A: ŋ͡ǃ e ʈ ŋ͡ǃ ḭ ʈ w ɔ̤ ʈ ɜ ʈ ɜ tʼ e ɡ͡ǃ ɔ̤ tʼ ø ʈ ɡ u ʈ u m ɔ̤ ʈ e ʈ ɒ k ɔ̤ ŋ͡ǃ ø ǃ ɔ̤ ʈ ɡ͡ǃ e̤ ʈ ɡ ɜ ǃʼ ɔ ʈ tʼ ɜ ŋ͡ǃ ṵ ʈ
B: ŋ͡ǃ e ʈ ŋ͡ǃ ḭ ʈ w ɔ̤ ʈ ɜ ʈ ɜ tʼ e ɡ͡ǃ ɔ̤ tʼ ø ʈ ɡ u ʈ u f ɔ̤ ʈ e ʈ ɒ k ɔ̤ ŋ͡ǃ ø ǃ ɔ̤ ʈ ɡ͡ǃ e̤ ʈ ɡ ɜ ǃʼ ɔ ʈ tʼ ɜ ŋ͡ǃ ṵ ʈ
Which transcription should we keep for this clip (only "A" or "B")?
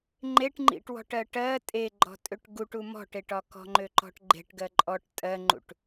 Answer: A